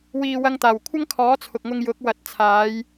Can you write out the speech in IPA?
w iː˨ w ɐ˧ ŋ t̪ aː˨˩ w kʷʰ ɐ˥ ŋ kʰ ɔː˨˥ t͡sʰ ʊ˨ k̚ ŋ ʊ˧ ŋ j ʊ˨˥ k̚ w ɐ˨ t̚ t͡sʰ aː˨˧ j

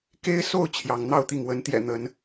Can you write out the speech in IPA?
k e˦ ɪ̯ s o˥˨ ʊ̯ t͡ɕʰ j ɑ˨˦ ŋ n̪ ɑ˥˨ ʊ̯ t̪ i˥˨ ŋ w ə˨˦ n t̪ j ɛ̰˨˩ n̪ ə˨˦ n

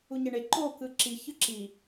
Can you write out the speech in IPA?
u ɲ e ɳ e ǃ o k ɯ ǁ i ç ɯ ǁ i

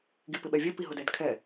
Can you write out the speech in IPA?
ɡ i p ɪ ɓ ɛ vʲ ɛ p i ɦ ʊ d ɛ d kʰ ɛ

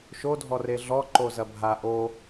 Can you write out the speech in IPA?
ʃ o dʱ ɔ r e ɮ ɔ ǃ o z ɐ bʱ a ʔ o

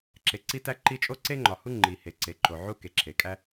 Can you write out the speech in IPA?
ǁ e˩ ǀ i˥ t æ˥ ǃ i˥ t͡ʃʼ o˥ ǀ e˥ ŋ͡ǃ ɒ˩ h u˥ ŋ͡ǃ i˩ h e˩ ǀ e˩ ǃ o˩ ʕ u˥ k e˩ ǁʰ e˩ kʼ æ˥

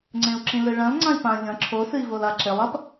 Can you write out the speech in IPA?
ŋ͡ǀ ẽ u̯ ǁ ĩ l ɨ ɭ ɐ̃ l ŋ͡ǀ ã i̯ p ã ʎ ɐ̃ ǁʰ o s ɨ i̯ v o l a ǁ e lˠ ɐ p

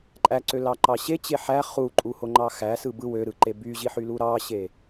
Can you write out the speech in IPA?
ǃʼ æ ǀ ø l ɑ ǃ ɑ ɕ e t͡ɕ e ħ æ χ u ǃʼ u h o ŋ͡ǃ ɑ x æ s ɯ b ɯ w ø ɾ ɯ ǃ e b y ʑ i ħ y l u ɾ ɑ ɕ e

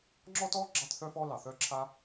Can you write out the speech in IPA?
ŋ͡ǁ ɔ˥ t ɔ˥ ɡ͡ǁ ɑ˥ t θ œ˥ f ɔ˥ l ɑ˩ θ œ˥ ǁʰ a˥

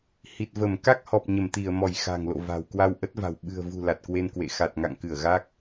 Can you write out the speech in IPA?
h i˨˩ t̚ v ə˧˩ m k a˦˥ k̚ h ɔ˨˩ p̚ ɲ ə˧˩ m t̪ i˧˩ ə̯ m ɔ˧˩ j x a̤˨˩ ŋ l o̰˧˨ v a̤˨˩ w k w a˧ w ʔ ə˦˥ t̚ v a̤˨˩ w ɓ ɨ̤˨˩ ə̯ v ṳ˨˩ l a˨˩ t̚ k w e˧ n k w ḛ˧˨ x a˨˩ t̚ ŋ a̰˧˨ ŋ k ɨ˧˩ ə̯ ɣ a˦˥ k̚

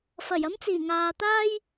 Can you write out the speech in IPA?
f ɐ˨˩ j ɐ˥ m t͡s iː˨˩ ŋ aː˨ t̪ aː˥ j

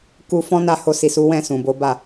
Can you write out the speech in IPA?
k u˧ f ɔ̃˦ n a˦˨ h o˧ s i˨ s u˨˦ w ɛ̃˦˨ s ũ˨ b o˨˦ b a˦˨

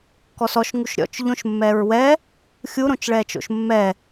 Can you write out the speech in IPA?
k ɔ s ɔ ʃ ŋ u ʃ ɾʲ ɔ̰ t͡ʃ ʎ õ ʃ mː ɛː ɹ w ɛ | xʲ u ɾ õ t͡ʃ ɭ ɛː t͡ʃ o̰ ʃ mː ɛ

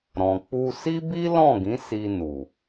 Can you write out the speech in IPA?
ɾ ɔ̃˨ k͡p u˧ s i˦ b i˦ l ɔ̃˦˨ ɡ ĩ˨˦ s i˧ n u˨

